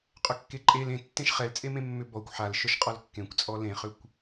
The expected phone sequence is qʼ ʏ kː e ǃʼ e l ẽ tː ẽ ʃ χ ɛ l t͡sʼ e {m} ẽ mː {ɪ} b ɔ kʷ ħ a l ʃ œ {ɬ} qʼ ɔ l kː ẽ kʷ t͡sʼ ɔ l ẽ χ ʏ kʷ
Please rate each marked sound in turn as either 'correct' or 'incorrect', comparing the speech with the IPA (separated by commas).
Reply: correct, incorrect, incorrect